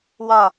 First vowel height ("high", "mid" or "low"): low